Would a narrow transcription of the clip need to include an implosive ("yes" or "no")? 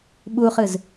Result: yes